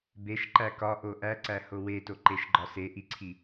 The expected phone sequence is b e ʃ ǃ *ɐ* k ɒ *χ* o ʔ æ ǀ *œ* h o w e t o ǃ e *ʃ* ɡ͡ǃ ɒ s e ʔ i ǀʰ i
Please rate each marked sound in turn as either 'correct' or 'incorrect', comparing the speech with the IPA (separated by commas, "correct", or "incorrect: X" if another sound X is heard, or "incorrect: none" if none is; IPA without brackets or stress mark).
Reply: incorrect: æ, incorrect: ʔ, incorrect: æ, correct